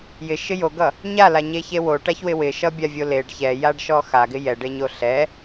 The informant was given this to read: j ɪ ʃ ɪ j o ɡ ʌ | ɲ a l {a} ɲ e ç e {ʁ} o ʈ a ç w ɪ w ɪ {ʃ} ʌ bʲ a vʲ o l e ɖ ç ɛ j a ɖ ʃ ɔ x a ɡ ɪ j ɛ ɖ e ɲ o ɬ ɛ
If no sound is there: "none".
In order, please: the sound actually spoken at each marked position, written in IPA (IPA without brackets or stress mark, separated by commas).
a, w, ʃ